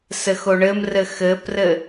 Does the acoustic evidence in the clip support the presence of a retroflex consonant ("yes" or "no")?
yes